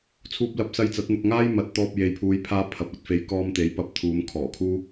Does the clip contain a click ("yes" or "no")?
no